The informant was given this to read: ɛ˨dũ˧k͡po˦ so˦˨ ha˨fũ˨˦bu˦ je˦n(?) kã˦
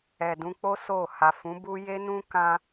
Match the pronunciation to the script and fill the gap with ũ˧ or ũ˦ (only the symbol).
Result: ũ˦